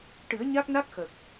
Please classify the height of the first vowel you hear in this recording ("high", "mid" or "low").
high